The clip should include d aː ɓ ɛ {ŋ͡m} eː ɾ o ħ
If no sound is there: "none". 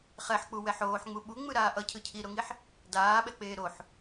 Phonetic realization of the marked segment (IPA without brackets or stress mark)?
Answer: k͡p